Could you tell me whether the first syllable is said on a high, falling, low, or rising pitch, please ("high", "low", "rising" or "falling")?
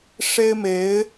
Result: high